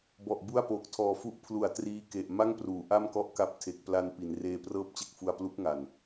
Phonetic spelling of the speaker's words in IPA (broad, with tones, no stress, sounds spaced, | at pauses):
b ɔ˨˩ ʔ b u˥˩ a̯ p oː˨˩ k̚ tʰ ɔː˧ f u˦˥ ʔ pʰ l u˨˩ a̯ t r iː˦˥ k e˨˩ ʔ m a˥˩ ŋ p r uː˩˦ ʔ a˥˩ m k ɔ˥˩ ʔ k a˦˥ p̚ tʰ e˨˩ k̚ p l a˧ n p i˩˦ n r eː˧ p r ɤː˥˩ p̚ t͡ɕ e˥˩ k̚ f u˧ a̯ p l u˦˥ k̚ ŋ a˨˩ n